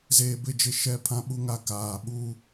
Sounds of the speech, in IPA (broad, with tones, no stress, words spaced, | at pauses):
zeː˨bɪ˦˨d͡ʒɪ˦˨ ʃɛ˦˨pʰã˦ɓu˦ŋa˦ kaː˨ɓu˦˨